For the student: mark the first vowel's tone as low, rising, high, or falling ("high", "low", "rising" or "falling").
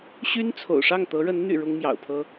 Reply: high